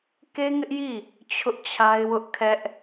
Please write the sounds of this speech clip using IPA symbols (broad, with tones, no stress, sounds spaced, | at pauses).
k e˦ ŋ ɪ˦ ʔ j i˦˨ | t͡ɕʰ ʊ˦ ʔ t͡ɕʰ a˦ ɪ̯ w ʊ˦ ʔ kʰ ɛ˦ ʔ